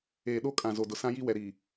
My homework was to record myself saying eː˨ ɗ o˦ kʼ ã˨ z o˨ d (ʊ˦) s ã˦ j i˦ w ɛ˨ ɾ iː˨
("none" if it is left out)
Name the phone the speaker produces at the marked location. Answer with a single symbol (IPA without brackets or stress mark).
ʊ˨